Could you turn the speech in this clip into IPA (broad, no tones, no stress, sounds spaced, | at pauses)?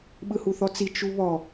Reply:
ɓ ɯ h u θ ɔ t͡s i t͡ʃ u β ɔ